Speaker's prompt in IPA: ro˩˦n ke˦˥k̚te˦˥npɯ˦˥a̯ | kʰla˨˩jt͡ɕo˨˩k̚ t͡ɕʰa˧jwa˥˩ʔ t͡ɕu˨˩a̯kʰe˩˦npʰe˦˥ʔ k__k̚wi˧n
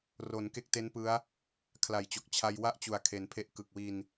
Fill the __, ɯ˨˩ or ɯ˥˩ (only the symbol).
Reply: ɯ˨˩